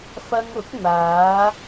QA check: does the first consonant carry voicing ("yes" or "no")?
no